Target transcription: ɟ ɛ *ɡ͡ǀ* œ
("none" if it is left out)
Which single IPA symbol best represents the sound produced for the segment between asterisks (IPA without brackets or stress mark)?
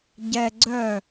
ɡ͡ǀ